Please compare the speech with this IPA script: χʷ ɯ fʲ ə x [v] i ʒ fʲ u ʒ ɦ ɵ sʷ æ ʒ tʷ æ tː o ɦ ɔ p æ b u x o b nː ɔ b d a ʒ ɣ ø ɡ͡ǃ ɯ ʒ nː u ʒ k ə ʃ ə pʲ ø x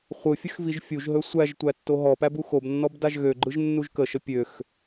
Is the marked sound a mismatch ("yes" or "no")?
no